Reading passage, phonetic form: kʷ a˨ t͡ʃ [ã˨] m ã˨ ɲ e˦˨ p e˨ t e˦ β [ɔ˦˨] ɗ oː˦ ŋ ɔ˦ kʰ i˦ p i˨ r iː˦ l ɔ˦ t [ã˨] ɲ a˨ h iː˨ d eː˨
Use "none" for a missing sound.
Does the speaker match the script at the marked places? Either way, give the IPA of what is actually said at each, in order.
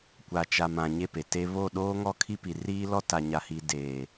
a˨, o˦˨, a˨

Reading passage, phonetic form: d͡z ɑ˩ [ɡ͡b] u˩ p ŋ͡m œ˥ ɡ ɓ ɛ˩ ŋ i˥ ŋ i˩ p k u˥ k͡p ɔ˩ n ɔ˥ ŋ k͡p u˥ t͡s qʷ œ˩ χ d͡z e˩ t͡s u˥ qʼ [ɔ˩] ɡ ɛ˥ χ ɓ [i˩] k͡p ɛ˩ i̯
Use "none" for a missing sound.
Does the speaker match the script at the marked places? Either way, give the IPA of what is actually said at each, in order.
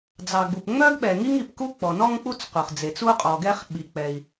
ɡ͡b, ɔ˩, i˩

